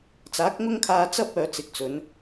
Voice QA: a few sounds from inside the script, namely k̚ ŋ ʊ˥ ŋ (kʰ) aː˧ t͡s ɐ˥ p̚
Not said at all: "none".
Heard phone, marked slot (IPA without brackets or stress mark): kʰ